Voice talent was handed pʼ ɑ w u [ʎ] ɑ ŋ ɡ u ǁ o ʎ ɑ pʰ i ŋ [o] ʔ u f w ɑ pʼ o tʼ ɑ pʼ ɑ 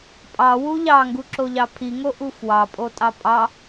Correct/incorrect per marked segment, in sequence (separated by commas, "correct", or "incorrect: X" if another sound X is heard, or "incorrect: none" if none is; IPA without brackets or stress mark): correct, correct